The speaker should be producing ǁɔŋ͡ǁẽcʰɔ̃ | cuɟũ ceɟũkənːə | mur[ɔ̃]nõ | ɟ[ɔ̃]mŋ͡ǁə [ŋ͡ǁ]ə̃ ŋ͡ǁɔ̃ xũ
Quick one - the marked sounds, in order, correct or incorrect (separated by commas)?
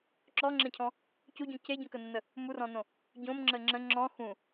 correct, incorrect, correct